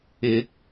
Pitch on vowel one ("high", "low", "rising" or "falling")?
rising